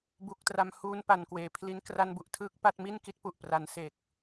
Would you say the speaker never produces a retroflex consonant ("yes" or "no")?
yes